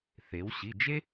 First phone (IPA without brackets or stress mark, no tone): θ